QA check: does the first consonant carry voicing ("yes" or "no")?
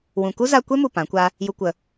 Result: yes